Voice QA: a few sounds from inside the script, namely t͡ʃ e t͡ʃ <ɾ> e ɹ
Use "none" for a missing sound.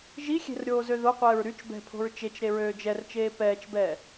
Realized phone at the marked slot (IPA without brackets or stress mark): ɾ